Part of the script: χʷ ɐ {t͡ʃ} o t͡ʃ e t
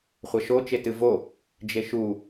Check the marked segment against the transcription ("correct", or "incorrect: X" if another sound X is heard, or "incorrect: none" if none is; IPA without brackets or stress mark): incorrect: ʃ